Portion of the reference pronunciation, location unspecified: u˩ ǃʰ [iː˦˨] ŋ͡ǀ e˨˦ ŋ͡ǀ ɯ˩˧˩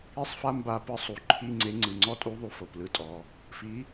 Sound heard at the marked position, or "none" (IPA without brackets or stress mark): i˦˨